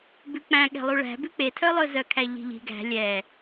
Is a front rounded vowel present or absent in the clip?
present